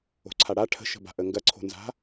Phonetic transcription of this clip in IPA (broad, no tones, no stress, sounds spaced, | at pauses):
o̤ ǀʰ a ɽ a ʈʰ ə̤ ʃ ə̤ b a̤ ʔ ə ŋ ɡ ɐ ǀʰ o̤ n z a̤